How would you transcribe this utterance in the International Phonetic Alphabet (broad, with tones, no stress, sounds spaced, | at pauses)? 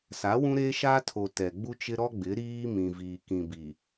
s a˨˦ w ũ˦ ɾ e˦ ʃ a˦ tʰ o˨ t ɛ˨ ɡ͡b u˦ t͡ʃ ɪ˦ ɾ ɔ˦ ɡ͡b ɪ˨˦ ɾ iː˦ m ĩ˨ v iː˨ k ĩ˨ b i˨